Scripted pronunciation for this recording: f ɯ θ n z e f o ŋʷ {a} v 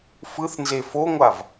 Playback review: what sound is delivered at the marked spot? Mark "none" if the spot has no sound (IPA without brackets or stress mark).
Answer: a